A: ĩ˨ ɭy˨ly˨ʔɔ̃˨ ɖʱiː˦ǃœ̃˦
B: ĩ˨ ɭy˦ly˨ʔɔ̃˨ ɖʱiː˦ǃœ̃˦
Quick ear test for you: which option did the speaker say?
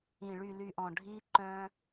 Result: A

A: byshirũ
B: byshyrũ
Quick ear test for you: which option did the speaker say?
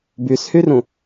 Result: B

